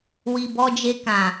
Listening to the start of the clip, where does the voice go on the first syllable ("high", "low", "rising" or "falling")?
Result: low